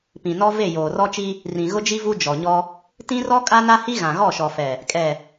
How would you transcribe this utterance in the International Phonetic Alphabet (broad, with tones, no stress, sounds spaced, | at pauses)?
p ĩ˨ n ɔ˦ v e˦˨ j oː˨ r ɔ˦ t͡ʃ i˦ | r ĩ˨ ɣ ʊ˦ d͡ʒ i˦ v u˦ d͡ʒ ɔ˨ ɲ ɔ˦ | t ĩ˦ r ɔ˦ kʼ a˦ n a˦ h i˦ ɣ ã˨ ɣ ɔ˦˨ ʃ ɔ˨ f ɛ˨ | kʼ ɛ˨